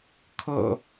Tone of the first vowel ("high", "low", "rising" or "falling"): low